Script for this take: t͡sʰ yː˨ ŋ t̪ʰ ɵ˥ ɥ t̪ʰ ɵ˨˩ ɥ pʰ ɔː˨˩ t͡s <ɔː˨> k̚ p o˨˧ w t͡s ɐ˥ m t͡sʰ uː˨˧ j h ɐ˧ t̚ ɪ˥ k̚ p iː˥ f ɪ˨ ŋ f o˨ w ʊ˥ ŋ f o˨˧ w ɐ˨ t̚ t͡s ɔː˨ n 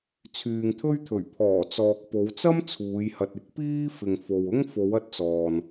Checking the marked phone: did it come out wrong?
no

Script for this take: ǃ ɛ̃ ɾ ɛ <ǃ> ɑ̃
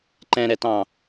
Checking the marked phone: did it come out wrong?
yes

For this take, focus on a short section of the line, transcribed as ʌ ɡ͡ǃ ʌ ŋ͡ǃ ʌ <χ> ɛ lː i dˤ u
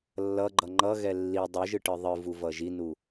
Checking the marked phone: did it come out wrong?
yes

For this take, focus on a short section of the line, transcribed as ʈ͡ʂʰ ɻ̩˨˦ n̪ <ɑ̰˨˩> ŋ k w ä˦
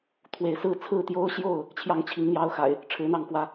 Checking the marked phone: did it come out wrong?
yes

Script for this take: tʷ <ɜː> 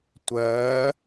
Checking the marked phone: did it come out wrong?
no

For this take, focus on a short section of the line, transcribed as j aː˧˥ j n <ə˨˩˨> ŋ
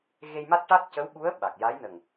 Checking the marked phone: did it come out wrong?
yes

